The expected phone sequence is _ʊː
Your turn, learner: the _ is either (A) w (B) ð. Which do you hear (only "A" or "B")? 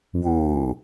A